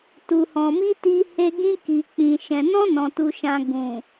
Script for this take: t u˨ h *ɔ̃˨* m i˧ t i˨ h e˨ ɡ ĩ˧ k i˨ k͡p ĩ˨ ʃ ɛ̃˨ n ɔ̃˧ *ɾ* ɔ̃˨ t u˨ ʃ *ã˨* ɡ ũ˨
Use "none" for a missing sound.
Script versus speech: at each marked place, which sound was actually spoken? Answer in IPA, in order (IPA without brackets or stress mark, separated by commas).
ɔ̃˨, n, ã˨